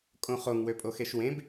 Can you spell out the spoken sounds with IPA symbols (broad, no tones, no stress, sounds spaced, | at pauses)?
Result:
kʼ õ χ o ŋ w ø pʼ o x e ʃ w ẽ b